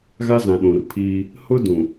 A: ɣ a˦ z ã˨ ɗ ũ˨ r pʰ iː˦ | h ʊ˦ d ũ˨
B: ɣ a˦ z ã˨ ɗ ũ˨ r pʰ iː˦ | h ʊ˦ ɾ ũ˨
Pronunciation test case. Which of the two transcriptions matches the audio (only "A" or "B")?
A